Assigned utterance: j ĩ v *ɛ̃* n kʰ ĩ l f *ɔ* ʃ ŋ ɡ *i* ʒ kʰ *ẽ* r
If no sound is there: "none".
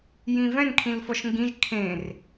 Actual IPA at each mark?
ɛ̃, ɔ, ĩ, ẽ

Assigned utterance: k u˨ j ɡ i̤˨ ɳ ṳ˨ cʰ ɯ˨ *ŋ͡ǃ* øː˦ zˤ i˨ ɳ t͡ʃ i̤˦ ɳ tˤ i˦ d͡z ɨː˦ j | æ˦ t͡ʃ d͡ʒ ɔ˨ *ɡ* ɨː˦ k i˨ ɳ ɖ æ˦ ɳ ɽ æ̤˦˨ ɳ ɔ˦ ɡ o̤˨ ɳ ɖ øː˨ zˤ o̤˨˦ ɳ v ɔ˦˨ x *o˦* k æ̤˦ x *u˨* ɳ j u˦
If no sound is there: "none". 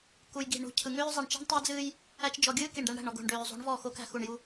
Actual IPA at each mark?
ŋ, ɡʲ, o˦, u˨

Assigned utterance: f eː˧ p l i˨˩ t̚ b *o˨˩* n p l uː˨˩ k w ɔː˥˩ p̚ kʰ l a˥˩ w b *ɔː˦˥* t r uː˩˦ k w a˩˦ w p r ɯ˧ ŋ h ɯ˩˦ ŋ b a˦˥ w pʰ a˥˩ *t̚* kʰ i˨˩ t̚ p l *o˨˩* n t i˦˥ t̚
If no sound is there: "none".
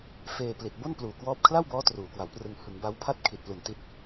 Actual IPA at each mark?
o˥˩, ɔː˦˥, t̚, u˨˩

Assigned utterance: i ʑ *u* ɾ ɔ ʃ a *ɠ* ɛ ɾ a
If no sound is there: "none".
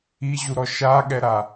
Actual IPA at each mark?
u, ɠ

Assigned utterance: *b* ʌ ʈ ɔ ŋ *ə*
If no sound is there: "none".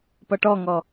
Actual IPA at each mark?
p, ɔ

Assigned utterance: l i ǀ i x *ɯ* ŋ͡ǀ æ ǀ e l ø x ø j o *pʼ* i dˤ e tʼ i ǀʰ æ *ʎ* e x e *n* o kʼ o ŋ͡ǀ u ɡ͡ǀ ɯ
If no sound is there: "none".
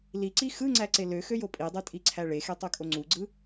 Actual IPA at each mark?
ɯ, pʼ, ɭ, tˤ

